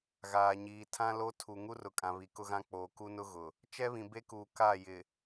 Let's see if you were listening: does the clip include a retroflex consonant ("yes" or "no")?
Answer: no